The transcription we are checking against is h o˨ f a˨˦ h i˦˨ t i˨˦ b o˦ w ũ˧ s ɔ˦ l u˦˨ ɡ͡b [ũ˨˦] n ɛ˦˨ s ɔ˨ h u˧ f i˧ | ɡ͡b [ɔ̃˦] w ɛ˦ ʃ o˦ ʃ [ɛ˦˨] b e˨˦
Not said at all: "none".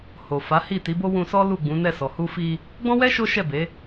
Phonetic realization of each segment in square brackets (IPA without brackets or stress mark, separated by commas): ũ˨˦, ɔ̃˦, ɛ˦˨